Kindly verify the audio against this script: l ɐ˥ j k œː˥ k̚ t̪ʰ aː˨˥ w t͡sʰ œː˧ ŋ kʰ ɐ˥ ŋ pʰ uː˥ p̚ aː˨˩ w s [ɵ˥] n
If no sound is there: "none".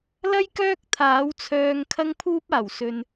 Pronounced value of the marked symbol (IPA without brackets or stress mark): ɵ˧